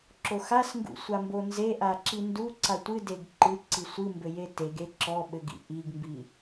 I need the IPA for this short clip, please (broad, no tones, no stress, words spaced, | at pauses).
ǁoxasŋɡṵ sʷambonzeʔa ǁinduǀa tʷɨdeɡ ǃɨǀi sʷɨmbɘ jeteɡe ǁɔ ɓɘɡḭ ʔiɡmbi